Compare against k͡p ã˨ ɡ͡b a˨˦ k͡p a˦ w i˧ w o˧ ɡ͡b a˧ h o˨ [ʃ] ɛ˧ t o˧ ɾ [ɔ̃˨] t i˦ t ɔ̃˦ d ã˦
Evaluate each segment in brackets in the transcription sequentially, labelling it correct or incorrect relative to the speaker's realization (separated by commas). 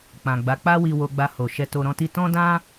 correct, incorrect